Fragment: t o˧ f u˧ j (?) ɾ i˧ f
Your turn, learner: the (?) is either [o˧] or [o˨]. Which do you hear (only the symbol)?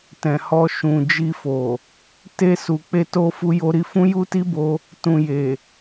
o˧